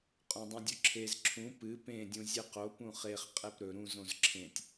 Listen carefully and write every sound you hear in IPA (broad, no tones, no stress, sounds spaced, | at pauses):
qʼ õ dˤ ũ dʲ ɵ ǁʰ e z ǁʰ ũ p ɨ p ẽ dʲ ũ zʲ ɨ q o p ũ χ e χ qʼ e p ɾ ɵ ɾ ũ z õ z ǁʰ ẽ tʲ